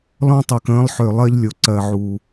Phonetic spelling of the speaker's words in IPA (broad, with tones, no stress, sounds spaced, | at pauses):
l ɔ̃˦ tˤ ø˨ k ə̃ː˦ lˠ ħ ø˨ lˠ ɜ˦ ʎ lʲ o˨ ǀ ɜ˨ ʕ u˨